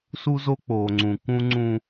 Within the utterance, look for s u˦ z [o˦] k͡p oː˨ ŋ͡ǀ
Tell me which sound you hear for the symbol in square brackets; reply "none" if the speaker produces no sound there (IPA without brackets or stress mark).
o˦